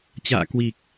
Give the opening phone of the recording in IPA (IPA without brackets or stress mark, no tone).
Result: t͡ɕ